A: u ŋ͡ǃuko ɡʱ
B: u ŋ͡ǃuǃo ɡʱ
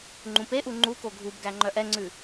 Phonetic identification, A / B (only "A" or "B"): A